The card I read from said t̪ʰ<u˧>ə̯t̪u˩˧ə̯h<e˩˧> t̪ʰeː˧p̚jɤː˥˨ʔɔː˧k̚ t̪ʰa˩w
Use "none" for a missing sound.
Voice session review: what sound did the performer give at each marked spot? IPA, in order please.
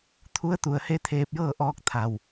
u˧˥, e˧˥

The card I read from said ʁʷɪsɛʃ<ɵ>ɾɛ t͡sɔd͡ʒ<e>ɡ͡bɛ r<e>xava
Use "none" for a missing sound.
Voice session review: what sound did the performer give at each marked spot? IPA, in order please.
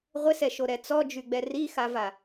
o, y, i

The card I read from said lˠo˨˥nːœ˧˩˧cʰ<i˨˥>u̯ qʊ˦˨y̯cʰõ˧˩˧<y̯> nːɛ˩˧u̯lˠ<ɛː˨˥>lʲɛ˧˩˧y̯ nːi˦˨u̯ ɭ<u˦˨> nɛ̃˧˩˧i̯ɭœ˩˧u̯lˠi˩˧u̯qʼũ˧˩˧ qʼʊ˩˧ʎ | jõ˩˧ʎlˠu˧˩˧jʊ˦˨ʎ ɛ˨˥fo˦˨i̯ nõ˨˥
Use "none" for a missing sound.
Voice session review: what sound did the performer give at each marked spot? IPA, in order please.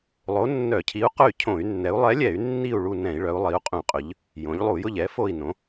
i˨˥, y̯, ɛ˨˥, u˦˨

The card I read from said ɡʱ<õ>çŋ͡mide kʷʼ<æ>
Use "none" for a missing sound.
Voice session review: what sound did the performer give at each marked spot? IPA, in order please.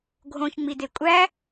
õ, æ

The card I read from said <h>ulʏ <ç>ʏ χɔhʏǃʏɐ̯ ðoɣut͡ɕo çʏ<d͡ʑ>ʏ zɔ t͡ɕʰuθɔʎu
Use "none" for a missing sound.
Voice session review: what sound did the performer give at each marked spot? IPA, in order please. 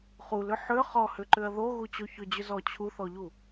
χ, ħ, d͡ʑ

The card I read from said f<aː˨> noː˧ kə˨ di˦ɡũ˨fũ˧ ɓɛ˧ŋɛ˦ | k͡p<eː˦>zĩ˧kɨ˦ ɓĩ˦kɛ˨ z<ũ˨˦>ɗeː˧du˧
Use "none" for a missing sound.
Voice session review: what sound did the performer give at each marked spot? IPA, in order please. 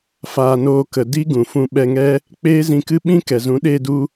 aː˨, eː˦, ũ˨˦

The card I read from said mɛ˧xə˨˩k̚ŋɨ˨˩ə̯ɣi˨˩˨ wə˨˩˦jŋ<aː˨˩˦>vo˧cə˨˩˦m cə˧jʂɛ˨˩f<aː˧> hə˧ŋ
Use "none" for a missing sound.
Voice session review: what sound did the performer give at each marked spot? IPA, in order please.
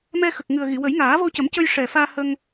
aː˨˩˦, aː˧

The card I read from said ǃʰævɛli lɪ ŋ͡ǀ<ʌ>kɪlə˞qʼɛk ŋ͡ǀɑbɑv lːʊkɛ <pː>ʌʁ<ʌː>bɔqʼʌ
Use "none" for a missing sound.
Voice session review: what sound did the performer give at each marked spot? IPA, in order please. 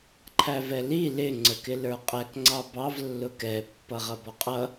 ə, pː, ʌ

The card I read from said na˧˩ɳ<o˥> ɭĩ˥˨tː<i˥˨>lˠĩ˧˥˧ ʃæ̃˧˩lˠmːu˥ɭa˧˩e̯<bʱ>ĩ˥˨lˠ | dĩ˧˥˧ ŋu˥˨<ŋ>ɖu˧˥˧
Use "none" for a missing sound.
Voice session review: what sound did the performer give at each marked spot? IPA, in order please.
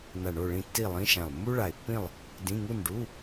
o˥˨, i˥˨, pː, n

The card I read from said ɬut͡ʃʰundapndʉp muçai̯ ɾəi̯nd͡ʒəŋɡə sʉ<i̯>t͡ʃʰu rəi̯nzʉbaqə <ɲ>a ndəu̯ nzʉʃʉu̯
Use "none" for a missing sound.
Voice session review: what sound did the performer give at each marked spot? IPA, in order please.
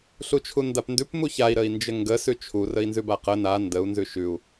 none, n

